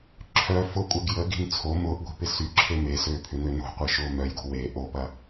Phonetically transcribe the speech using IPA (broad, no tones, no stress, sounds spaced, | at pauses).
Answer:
ǁʰ œ f ʊ kʷʼ ɛ ɡ j ə ɡ i̤ n t͡sʰ o m ʊː ʔ ɡʷ i̤ p ɪ s y ǁʰ e m e s øː pʰ ʏ n ø n o̤ qʷ e ʃ ʊː m œ j ɡ o̤ w e ʔ o p ɐ